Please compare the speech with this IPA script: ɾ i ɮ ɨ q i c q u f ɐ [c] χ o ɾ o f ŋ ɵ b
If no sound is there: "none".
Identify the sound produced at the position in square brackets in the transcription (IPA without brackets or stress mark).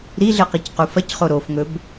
c